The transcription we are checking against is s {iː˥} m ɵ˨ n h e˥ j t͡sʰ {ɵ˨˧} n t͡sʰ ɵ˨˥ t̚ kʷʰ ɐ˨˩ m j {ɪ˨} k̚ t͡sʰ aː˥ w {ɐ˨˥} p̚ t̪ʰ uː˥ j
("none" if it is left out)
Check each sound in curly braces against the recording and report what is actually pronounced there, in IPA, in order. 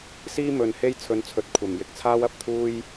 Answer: iː˥, ɵ˨˧, ɪ˨, ɐ˨

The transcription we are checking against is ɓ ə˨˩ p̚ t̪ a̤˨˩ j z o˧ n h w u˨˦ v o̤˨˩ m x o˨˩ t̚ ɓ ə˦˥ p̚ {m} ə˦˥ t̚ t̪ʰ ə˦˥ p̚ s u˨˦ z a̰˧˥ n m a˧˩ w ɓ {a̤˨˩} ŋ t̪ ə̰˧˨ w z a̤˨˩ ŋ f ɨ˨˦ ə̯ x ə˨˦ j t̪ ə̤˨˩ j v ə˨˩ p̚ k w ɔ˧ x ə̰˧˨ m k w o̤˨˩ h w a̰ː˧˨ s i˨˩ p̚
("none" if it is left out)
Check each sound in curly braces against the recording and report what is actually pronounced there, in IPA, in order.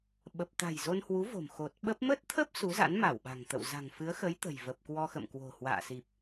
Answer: m, a̤˨˩

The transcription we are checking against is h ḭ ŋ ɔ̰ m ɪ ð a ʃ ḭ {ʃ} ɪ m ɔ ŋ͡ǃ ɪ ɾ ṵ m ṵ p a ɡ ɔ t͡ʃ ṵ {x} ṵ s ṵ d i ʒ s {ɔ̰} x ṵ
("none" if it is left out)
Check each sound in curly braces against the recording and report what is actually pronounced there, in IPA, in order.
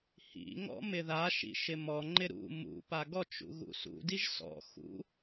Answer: ʃ, ɣ, ɔ̰

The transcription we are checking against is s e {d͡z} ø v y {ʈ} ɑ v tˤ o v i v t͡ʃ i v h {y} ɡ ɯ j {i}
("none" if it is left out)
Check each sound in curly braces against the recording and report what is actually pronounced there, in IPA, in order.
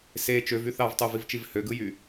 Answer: t͡ʃ, θ, ø, y

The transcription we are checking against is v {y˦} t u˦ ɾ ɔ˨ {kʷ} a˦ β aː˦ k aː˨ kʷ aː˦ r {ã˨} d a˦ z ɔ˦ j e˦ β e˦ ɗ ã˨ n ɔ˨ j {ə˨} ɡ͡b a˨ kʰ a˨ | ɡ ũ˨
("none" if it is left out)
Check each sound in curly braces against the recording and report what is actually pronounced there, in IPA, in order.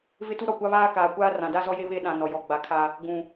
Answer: ɪ˦, kʷ, ã˨, ɔ˨

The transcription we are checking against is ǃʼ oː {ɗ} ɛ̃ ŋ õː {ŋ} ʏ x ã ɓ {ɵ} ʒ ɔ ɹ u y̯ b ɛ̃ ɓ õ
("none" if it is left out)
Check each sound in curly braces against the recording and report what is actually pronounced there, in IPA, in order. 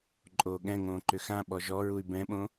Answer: ɠ, ǃ, ɔ

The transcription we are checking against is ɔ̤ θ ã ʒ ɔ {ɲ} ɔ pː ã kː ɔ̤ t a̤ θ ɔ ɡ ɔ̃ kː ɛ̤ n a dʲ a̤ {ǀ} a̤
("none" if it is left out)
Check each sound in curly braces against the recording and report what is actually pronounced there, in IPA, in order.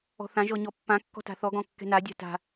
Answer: ɲ, t

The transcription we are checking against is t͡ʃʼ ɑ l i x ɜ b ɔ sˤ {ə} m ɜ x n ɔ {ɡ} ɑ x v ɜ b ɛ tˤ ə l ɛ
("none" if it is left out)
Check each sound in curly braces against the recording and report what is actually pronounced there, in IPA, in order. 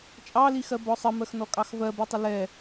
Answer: ə, kʼ

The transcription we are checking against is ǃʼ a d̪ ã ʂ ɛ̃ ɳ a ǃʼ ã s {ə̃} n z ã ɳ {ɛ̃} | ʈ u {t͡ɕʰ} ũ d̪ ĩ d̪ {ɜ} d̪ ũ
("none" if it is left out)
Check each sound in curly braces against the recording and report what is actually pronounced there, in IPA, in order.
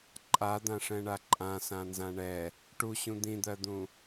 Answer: ã, ɛ, ɕ, ɜ

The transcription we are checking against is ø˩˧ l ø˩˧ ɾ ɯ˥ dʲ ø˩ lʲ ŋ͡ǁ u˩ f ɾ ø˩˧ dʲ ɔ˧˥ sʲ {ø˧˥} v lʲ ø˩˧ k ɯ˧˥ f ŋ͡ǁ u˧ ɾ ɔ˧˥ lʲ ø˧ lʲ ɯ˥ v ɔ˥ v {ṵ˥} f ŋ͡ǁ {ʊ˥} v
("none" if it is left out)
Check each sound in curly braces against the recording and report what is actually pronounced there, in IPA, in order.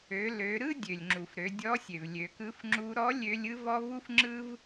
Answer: ø˩, u˥, ɯ˥

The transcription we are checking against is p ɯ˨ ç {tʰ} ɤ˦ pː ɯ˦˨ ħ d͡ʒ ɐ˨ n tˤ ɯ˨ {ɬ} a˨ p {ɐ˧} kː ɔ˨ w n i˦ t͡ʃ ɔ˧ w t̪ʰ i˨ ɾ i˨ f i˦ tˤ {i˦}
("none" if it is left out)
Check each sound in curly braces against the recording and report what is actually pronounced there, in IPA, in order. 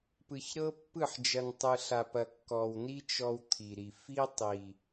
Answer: ɾ, ɬ, ɐ˨, i˨

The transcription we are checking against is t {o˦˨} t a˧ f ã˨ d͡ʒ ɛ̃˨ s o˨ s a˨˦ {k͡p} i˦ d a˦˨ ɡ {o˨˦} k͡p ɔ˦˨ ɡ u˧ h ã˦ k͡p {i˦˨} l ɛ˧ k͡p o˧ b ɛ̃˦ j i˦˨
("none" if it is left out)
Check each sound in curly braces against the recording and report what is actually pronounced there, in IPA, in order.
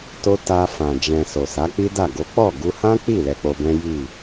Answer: o˧, k͡p, o˨˦, i˦˨

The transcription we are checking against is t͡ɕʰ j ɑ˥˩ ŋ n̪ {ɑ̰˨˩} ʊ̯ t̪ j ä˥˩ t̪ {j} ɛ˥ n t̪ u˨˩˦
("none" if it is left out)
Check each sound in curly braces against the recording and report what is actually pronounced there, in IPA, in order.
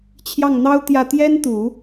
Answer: ɑ˥, j

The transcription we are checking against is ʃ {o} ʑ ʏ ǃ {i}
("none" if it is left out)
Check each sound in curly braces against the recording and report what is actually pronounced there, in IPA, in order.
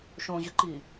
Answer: õ, i

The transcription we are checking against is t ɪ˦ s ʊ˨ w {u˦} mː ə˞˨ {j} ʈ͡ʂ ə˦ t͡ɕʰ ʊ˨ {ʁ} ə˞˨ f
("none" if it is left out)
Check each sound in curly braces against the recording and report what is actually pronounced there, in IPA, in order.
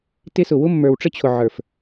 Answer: ʊ˦, w, ʕ

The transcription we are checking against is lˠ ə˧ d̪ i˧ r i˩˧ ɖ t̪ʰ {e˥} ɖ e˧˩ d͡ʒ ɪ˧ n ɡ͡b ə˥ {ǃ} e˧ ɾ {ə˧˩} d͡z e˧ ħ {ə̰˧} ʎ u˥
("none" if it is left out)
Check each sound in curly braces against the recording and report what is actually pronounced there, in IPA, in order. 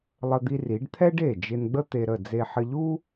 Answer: ɛ˥, t̪, ə˧˩, ə˧

